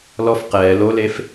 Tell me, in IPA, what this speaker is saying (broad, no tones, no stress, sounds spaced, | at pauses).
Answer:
l ɔ f q ɛː l o l e f